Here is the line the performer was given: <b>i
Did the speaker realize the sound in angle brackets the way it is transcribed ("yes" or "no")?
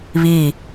no